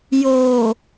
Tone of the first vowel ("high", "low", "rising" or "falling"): low